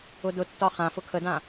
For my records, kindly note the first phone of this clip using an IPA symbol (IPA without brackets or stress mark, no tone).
ʊ